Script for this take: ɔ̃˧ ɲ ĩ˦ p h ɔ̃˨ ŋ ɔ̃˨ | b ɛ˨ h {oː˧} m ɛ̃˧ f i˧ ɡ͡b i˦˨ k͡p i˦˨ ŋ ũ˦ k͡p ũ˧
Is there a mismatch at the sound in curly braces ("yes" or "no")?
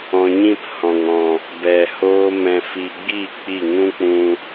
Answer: no